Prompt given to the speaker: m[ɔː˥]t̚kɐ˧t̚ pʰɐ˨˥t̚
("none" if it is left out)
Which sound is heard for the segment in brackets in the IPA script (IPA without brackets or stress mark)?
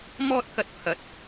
ɔː˥